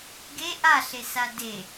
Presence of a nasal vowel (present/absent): absent